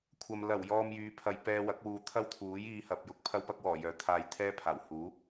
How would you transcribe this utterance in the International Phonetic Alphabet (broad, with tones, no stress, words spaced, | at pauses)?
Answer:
kʷʰɐ˨m lɐ˨˩wjɔː˨m jyː˨˧pʰɐ˨j pɛː˧wɐ˨˥k̚wuː˨ t̪ʰɐ˥wt̪ʰuː˨˥j iː˧hɐ˨p̚jʊ˧k̚ pʰɐ˧wpɐ˧k̚wɔː˨˩ jœː˨˧t̪ʰaː˧jt̪ʰɛː˥pʰaː˨˩w huː˨˥